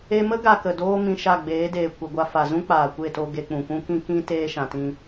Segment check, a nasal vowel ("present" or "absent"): present